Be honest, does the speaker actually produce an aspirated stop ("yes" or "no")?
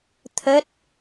yes